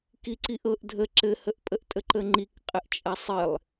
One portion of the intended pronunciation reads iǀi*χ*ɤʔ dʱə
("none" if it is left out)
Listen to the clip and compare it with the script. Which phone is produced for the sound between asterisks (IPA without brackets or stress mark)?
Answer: ʔ